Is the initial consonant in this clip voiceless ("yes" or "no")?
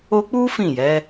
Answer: yes